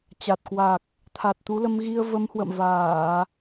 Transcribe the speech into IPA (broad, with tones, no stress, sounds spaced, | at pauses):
t͡ɕ a˨˩ t̚ k w a˨˩ k̚ | t̪ʰ a˨˩ t̚ t̪ u˨˦ l ə˧ m ɣ i˧ ə̯ v ə˨˦ m h w ə̰˧˨ m v aː˧˩˨